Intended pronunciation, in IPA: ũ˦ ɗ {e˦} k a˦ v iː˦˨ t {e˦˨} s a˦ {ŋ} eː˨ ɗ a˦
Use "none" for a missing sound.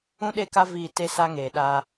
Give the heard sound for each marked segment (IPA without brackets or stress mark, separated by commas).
e˦˨, e˦, ŋ